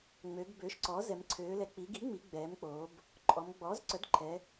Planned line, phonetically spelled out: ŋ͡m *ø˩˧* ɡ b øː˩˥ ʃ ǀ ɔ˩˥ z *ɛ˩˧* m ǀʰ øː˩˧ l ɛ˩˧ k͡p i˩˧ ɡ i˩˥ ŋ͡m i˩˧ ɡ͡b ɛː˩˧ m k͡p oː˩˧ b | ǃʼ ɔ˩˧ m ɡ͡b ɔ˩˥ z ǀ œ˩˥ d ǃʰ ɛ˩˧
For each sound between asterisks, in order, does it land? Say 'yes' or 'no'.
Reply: yes, yes

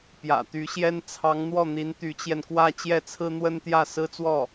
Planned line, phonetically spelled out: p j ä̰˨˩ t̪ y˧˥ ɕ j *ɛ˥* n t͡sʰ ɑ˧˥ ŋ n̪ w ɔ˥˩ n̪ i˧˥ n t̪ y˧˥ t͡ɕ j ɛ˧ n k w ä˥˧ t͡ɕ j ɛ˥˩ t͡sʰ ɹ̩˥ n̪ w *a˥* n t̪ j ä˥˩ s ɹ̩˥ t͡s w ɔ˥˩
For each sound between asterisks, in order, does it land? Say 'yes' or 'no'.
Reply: yes, no

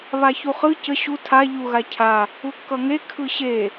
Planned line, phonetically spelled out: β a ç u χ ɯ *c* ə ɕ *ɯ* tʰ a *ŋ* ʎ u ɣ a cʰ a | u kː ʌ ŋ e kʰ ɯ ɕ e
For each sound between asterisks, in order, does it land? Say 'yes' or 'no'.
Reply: yes, no, no

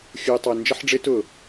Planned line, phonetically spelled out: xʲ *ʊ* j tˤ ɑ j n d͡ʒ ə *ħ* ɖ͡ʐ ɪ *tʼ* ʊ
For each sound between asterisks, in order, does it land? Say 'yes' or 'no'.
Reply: no, yes, no

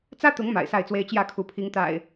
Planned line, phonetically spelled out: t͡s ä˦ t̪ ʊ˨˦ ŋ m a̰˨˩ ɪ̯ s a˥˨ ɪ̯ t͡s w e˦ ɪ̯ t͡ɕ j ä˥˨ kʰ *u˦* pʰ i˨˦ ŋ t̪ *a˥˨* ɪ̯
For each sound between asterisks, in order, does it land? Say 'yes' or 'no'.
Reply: no, no

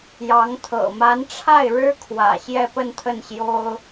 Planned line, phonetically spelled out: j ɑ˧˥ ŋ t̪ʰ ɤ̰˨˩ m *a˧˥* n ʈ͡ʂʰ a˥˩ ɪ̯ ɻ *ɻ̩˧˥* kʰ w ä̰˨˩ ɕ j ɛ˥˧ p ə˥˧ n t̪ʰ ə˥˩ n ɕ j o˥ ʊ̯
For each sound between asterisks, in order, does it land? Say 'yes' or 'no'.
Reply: yes, no

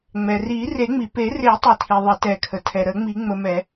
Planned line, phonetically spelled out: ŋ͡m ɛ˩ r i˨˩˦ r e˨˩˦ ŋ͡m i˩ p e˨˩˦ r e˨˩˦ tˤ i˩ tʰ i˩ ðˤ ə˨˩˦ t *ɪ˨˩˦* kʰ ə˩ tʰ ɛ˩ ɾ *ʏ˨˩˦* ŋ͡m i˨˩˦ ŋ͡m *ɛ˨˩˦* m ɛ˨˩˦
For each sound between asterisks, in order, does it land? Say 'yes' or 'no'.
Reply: no, no, no

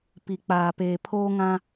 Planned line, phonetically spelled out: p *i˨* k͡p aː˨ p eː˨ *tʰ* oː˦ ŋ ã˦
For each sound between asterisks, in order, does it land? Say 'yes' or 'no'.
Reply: yes, no

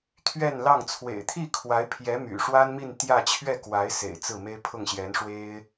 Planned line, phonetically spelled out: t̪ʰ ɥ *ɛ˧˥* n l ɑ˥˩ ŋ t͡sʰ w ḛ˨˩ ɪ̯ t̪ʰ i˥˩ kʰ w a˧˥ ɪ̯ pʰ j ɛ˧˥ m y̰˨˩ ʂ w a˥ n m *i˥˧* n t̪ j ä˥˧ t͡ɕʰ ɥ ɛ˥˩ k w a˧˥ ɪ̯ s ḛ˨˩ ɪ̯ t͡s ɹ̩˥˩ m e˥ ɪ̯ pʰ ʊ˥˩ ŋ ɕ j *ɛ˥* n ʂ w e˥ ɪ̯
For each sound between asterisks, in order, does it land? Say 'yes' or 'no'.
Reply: no, yes, no

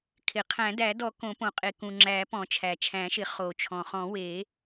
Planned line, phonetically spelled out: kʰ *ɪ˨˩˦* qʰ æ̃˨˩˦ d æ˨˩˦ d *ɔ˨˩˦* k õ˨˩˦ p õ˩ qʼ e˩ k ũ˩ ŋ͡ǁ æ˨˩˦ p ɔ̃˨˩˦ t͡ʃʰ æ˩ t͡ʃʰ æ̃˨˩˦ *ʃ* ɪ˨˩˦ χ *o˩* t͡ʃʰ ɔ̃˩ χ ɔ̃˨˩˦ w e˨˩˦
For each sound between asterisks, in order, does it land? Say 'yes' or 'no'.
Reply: no, yes, yes, yes

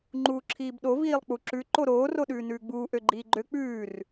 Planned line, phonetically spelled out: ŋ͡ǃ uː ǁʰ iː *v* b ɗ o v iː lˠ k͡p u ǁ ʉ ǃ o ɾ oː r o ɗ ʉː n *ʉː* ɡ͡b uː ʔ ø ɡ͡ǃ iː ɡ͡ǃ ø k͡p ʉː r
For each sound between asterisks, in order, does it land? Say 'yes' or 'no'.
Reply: no, yes

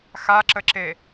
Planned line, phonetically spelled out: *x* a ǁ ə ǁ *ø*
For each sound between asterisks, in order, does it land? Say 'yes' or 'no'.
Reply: yes, no

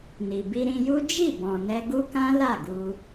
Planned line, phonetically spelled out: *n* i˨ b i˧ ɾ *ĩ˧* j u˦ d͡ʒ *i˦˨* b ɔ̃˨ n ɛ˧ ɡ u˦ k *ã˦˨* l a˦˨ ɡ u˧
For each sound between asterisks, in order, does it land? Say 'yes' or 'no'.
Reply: yes, yes, yes, no

